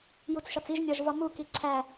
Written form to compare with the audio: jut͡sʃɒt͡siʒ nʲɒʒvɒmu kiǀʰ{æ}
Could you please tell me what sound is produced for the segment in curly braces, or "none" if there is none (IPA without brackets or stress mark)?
æ